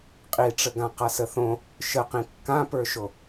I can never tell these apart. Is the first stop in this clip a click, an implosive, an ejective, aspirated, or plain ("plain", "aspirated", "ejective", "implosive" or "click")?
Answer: ejective